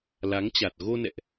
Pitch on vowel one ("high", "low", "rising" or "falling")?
rising